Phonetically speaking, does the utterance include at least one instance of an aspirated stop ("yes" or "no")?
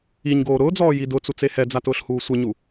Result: no